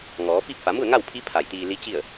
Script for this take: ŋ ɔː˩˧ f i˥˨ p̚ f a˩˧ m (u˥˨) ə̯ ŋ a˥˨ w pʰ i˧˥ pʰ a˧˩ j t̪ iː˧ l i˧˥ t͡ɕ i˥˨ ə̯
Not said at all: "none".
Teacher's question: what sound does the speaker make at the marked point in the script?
u˥˨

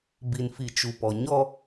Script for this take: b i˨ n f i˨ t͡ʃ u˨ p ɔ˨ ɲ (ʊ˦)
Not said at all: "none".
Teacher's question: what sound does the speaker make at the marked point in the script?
ɔ˦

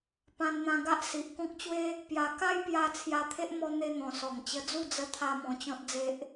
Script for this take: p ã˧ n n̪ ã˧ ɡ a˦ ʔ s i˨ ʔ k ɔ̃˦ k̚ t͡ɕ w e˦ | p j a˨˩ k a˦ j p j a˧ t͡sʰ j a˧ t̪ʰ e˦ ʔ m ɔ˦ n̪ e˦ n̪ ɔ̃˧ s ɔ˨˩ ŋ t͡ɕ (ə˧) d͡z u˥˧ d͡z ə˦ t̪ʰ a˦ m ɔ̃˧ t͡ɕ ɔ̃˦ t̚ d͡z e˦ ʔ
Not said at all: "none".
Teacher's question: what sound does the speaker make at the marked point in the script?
ə˧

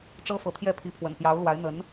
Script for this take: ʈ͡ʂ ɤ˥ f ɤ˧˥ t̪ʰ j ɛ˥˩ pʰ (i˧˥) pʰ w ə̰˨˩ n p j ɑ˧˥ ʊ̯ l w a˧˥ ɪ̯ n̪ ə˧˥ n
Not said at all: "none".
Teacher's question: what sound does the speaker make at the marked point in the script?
i˧˥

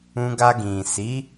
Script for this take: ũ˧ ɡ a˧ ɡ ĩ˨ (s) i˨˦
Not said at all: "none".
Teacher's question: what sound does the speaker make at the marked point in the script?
s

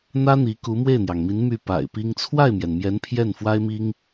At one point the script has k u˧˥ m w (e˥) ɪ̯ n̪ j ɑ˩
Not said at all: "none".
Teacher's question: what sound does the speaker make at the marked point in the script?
e˥˩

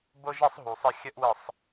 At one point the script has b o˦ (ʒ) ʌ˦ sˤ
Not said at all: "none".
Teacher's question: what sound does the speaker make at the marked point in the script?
ʒ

